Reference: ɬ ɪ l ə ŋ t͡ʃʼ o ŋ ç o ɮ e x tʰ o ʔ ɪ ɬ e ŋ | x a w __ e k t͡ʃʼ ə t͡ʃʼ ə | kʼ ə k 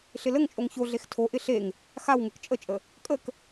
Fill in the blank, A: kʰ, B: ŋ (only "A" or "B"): B